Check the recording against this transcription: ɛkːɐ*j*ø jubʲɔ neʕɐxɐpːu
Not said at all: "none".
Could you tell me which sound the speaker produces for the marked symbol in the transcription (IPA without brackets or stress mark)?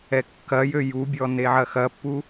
j